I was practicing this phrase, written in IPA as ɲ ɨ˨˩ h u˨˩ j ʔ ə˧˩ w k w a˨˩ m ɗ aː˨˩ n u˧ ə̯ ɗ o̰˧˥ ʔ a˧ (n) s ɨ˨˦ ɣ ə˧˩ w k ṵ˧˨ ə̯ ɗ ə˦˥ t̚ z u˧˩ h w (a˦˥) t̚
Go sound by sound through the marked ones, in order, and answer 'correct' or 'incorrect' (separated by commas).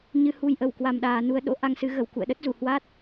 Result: incorrect, correct